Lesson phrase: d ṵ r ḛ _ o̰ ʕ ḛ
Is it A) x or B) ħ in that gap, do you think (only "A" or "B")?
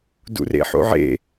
B